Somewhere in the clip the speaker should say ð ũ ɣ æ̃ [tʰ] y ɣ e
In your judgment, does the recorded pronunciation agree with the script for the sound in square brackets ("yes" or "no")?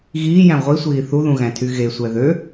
yes